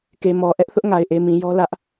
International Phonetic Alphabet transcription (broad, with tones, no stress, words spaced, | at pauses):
ke˨mɔ˨ ʔɛ˦ʔθʊ˦ʔ ŋa˨ɪ̯ʔe˨ mĩ˨jɔ˦ lä˦ʔ